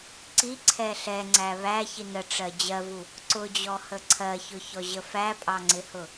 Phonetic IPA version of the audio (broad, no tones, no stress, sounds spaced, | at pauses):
ǀ i ǀʰ ɛ ɬ ɛ ŋ͡ǀ æ β æ ç i n ə ʈ͡ʂ ɜ d͡ʑ ɜ v u | ǀ ʊ d͡ʑ ɔ h ə ǀʰ ɜ ç ʊ ç ɔ ʑ ə f æ pʼ ɑ ŋ͡ǀ ɪ h ʊ